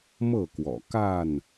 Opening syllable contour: falling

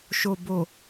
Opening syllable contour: low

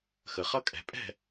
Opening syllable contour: low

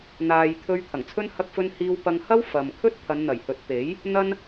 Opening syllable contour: low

